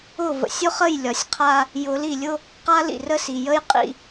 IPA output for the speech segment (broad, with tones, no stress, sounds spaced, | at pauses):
ʊ˦˨ v ə̰˨ sʲ ʊ˦ χ ə˦˨ j lʲ ɒ˨ sʲ qʰ a˦ | j ʊ˨˦ l i˨ lʲ ʊ˦ | q a˦ l ḭ˨ r ə˦ s i˨ j ə˦ j qʼ ḭ˨